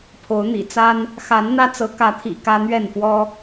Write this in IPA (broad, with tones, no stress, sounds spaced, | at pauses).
pʰ o˨˦ ʊ̯ n̪ ḭ˨˩ t͡s a˦ n | x a˨˦ n n̪ ä˦ t͡s ɤ˨˦ k ä˨˦ t̪ʰ ḭ˨˩ k ä˦ n̪ ɥ ɛ˥˨ n f w ɔ˦